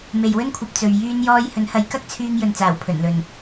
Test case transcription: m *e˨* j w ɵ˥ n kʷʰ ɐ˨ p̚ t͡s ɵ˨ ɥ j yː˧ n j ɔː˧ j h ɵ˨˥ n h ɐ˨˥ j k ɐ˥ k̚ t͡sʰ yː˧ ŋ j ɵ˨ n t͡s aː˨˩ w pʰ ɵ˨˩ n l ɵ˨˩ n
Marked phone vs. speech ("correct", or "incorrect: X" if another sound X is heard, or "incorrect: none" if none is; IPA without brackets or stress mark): correct